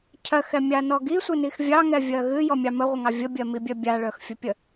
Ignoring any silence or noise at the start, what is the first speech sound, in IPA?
cʰ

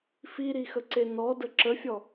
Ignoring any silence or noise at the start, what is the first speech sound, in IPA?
f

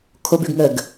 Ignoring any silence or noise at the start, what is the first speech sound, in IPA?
kʰ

